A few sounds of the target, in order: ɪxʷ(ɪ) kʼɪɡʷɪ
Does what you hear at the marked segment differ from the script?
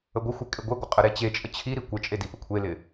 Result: no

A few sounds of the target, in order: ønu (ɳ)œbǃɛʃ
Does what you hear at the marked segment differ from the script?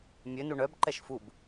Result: no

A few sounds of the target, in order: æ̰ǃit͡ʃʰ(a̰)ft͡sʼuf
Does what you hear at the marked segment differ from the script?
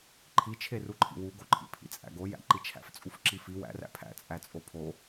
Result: yes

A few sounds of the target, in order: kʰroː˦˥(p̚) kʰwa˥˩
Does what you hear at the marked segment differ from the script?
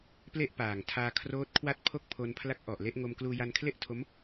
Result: yes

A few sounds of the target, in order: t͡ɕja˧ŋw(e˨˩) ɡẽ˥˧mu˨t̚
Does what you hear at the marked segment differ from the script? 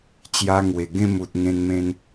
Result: no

